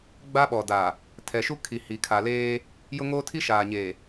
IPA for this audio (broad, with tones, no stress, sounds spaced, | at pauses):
ɡ͡b a˦ ɓ ɔ˨ d a˨ | tʰ ɛ˨ ʃ u˦ kʰ i˨ h i˨ kʰ a˨ l eː˦ | j ʊ˦ ŋ oː˦ tʰ i˦ ʃ aː˨ ɲ eː˨